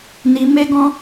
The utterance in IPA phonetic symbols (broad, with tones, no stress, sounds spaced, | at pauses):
n i˧ m e˦ ɡ ɔ̃˦